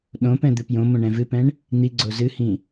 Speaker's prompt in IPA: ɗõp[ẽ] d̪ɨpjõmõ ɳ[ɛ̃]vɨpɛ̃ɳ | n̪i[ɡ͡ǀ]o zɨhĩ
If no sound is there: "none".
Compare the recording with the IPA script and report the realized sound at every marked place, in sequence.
ɛ̃, ɛ̃, ɡ͡ǀ

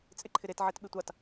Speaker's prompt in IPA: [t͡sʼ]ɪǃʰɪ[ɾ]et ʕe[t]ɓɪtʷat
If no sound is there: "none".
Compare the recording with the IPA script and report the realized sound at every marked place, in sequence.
t͡sʼ, ɾ, t

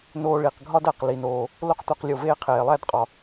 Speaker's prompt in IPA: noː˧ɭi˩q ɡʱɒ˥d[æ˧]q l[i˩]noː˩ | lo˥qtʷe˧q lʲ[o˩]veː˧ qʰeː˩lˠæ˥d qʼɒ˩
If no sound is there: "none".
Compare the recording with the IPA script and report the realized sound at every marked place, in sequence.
æ˩, i˩, o˩

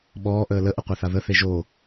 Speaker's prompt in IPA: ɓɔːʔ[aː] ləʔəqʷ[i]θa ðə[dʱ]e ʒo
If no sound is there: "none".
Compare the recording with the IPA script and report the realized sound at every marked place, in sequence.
əː, e, θ

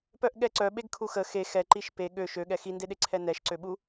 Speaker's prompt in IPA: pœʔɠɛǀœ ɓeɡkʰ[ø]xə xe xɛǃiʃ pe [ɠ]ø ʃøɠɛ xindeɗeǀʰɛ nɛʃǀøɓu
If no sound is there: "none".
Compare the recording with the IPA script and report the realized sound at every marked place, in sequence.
u, ɠ

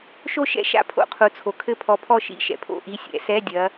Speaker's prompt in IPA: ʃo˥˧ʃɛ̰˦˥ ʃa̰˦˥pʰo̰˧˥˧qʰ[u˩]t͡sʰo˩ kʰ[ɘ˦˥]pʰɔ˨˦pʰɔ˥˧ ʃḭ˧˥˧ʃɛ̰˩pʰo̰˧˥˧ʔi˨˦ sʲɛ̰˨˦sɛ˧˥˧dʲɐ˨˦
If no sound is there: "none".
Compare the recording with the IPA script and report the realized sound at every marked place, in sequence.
u˩, ɘ˦˥

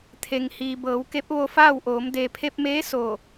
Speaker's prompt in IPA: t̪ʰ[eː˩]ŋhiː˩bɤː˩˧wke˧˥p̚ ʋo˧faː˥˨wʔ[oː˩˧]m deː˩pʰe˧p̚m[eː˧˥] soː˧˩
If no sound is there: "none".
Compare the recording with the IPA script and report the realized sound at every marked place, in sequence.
e˩, oː˩˧, eː˧˥

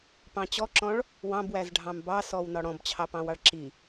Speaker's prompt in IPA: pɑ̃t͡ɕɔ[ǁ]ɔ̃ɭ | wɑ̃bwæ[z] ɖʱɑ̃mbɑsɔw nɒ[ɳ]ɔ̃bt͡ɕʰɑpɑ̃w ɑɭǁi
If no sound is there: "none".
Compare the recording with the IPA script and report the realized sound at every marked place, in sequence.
ǁ, z, ɽ

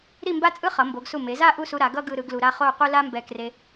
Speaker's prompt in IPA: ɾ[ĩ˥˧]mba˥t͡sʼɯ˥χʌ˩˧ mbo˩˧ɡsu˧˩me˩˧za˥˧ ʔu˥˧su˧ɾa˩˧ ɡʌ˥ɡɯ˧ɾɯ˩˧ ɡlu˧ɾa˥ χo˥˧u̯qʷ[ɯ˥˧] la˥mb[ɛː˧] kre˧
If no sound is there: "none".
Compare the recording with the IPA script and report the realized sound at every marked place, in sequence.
i˥˧, ɯ˥, ɛ˧

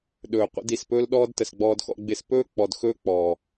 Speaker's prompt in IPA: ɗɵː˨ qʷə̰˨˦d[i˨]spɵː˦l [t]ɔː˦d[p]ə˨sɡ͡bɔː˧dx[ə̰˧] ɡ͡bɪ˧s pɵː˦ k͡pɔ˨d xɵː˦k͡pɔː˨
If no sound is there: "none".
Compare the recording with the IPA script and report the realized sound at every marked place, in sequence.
i˨, ɗ, t, ɔ̰˧

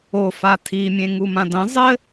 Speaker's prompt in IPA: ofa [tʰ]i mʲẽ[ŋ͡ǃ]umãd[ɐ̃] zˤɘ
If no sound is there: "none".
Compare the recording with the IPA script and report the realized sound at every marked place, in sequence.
tʰ, ŋ, ɐ̃

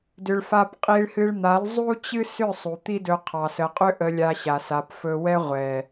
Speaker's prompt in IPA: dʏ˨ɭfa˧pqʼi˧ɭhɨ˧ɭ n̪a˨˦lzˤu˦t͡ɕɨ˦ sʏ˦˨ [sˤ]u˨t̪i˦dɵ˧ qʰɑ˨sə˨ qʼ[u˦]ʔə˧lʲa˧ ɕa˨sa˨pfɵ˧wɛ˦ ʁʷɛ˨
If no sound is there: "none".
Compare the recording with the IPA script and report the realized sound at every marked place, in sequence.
sˤ, ʏ˦

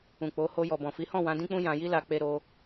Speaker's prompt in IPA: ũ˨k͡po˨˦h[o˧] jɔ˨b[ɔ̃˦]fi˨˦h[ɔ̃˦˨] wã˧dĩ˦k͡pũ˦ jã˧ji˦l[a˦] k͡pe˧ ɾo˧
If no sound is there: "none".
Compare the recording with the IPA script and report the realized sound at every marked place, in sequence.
o˧, ɔ̃˨, ɔ̃˦˨, a˧

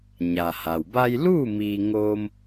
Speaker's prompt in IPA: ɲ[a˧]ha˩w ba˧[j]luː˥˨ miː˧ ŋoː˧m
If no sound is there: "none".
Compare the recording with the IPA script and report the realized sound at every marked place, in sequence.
a˩, j

